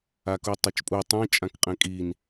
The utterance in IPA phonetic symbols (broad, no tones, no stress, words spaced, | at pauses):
akutˤɛt͡ʃpʼu tˤɛ̃ t͡ʃʼãkqʼɛ̃kʼin